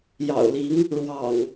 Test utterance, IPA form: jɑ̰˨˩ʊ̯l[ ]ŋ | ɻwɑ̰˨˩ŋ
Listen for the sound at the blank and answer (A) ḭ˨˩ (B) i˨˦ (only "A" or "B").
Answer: B